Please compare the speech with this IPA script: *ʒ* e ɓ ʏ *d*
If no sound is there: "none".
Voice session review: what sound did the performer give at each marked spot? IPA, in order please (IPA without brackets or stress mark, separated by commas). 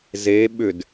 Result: z, d